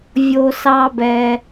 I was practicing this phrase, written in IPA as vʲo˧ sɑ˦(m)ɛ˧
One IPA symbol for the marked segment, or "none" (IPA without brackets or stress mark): b